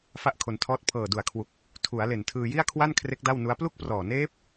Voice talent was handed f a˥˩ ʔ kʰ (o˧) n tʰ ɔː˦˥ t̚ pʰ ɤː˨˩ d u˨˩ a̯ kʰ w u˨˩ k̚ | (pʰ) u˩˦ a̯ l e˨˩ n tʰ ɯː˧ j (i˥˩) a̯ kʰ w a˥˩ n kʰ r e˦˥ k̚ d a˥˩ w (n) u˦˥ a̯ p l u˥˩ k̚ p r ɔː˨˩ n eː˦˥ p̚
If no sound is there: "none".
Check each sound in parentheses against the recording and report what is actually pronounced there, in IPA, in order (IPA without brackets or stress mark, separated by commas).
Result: o˧, tʰ, i˥˩, n